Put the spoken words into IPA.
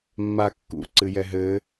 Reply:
mː a kː ṵ ǀ ɨ j ɛ ɦ ɘ

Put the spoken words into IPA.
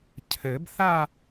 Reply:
cʰ ɘ˨˩˦ b θ a˥˧

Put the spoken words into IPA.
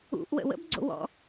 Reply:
ṵ ʔ w ə̰ w ə̰ b ɡ͡ǀ o̰ w ɔ̰

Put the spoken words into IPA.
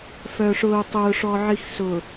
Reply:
f œ˨ ʂ ʊː˨ tˤ ʊː˨ ʂ ɔ˨ ʕ i˨ x s ʊː˨

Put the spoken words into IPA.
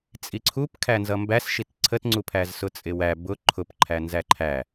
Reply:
t͡sʼ i ǀʰ u p kʰ æ n z ʌ m b æ s ʃ i t ǀʰ ə t ŋ͡ǀ u pʰ æ z s ʊ t͡sʼ ɪ w æ b ʊ ǃʰ ʊ p ǃʰ æ n z æ ǃʰ æ

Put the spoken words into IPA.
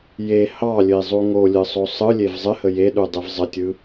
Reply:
j e h ɑ lʲ ɘ i̯ zˤ u ŋ o lʲ ɯ sˤ o sˤ ɯ lʲ e v zˤ ɘ h ə j e ɗ u dˤ e v zˤ ə tʲ ɯ

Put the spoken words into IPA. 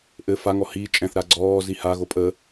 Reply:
ʔ ɘ f a ŋ ɔ h iː t͡ʃʼ ɛ̃ θ ɾ a ɡ͡ǀ ɔː z i h a ɣ o pʼ ə

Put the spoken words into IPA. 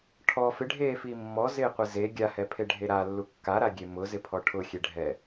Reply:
ʈʰ ɔ f ɪ ɖʱ eː f iː mː ɔ z ɪː qʷ ɪ z e ɡʲ a h ɛ pʰ e ɖʱ e ɾ a lː u kː a ɾ a ɡʲ e m ʊ z ɪ pʰ ɔ ʈʰ ʊ xʲ e ɖʱ ɛ

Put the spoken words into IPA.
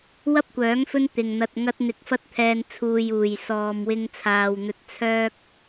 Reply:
w ɐ˥ p̚ kʷ œː˨˥ ŋ f ɵ˥ n t̪ ɪ˨ ŋ n̪ ɐ˧ t̚ ŋ ɐ˥ t̚ n̪ ɪ˧ k̚ f ɐ˥ t̚ t̪ʰ ɛː˧ n t͡sʰ uː˨ j uː˨˩ j s ɔː˨ m w ɪ˧ ŋ t͡sʰ aː˨ w n̪ ɵ˧ t̚ t͡sʰ œː˥ k̚

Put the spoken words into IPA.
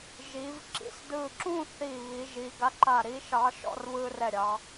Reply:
ʒ iː˩˧ v ǁ ḭ˨˥ s d ɯː˧˩ ǁ ũː˥˧ θ iː˧˩ β i˩˧ ʒ iː˩˧ ɡ a˨˥ ǃ a˧˩ ɾ i˨˥ ʃ ɑ˨˥ ʃ ɔ̰˥˧ r β ɯː˧ r ɛ˧˩ ɾʲ ɑ˩˧

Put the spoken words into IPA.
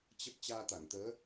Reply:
t͡ɕ ə˦˥ p̚ t͡ɕ aː˧ t̪ a˧˩ ŋ t̪ əː˨˦

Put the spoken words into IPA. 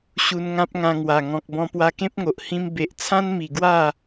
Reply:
ɕ u˧ n ŋ ã˦ p̚ ŋ ã˧ ŋ w a˨˩ ŋ ɔ̃˨ k̚ b ɔ̃˧ p w a˧ k ẽ˦ p̚ ŋ o˨ ʔ h ĩ˧ m b e˨ ʔ t͡sʰ ã˦ n m i˨˩ ɡ w a˥˧

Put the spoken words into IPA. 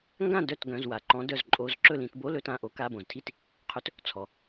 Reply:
ŋ ɡ ã˥˩ d œ˥˩ t ɡ œ̃˩˧˩ z w a˩ ǃ ɔ̃˨˦ d œ˩˧˩ z ǃʼ o˨˦ z ǁ ɵ˥˩ l ĩ˧˩˧ t b o˧˥˧ l ɵ˨˦ t ã˩˧˩ ʔ o˨˦ k a˩˧˩ b õ˩ z tʰ i˥˩ t | qʰ ɵ˨˦ t | t͡sʰ ɔ˩

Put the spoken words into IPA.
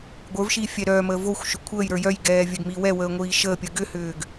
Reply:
ɡʷ ə˞ v ʃ iː fʲ ɛ ɾ œː m əː v o xʷ ʃ ʏ kʷʰ əː j ɾ ə˞ j œ j ɡ ɛː vʲ œ ɡ m iː w ɛ w əː ŋʷ iː ʃ əː pʲ ə ɡ ʏ h ʏː ɡ

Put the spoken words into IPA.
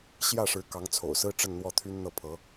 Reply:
ɕ j ä˥˩ ʂ ɻ̩˧˥ k ɑ˧˥ ŋ t͡sʰ o̰˨˩ ʊ̯ s ɹ̩˥ ʈ͡ʂ ə˥˧ n n̪ w ɔ˥˩ t̪ʰ y˥ n n̪ ɤ˥˩ pʰ ɤ˧˥

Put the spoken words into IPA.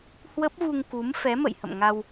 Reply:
h w ə˦˥ p̚ v u˧ ŋ k u˨˦ m f ɛ˨˦ m ə̰˧˨ j h ə̰˧˨ m ŋ a˧ w

